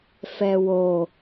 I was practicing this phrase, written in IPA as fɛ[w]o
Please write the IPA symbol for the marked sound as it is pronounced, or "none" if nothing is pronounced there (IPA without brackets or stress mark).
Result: w